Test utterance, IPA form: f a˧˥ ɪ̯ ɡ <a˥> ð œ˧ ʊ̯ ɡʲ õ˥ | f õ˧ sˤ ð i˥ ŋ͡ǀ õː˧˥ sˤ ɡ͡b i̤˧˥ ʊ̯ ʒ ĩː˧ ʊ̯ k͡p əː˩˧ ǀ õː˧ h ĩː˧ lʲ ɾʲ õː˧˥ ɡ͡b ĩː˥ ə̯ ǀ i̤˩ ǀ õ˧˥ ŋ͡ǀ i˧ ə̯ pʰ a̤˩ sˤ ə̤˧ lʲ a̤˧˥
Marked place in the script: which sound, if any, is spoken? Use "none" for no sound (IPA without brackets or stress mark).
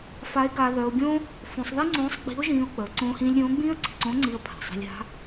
a˧